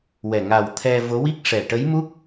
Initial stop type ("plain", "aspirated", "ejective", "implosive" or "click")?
aspirated